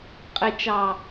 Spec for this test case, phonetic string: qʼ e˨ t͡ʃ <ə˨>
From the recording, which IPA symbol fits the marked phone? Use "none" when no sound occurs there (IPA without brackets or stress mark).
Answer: ɑ˨